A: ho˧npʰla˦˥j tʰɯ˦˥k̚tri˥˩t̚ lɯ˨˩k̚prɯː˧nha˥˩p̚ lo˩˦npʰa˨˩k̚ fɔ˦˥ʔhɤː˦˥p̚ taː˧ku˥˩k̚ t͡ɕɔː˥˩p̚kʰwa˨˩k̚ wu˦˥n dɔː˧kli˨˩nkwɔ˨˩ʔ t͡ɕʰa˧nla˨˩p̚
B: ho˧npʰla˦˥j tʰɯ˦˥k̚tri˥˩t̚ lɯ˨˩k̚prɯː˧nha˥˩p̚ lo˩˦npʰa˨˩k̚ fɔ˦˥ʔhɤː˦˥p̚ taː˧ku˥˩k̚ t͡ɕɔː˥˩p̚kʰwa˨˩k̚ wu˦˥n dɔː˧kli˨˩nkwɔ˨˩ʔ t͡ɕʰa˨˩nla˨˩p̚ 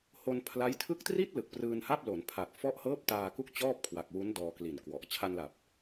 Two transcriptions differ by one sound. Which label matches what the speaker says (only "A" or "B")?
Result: A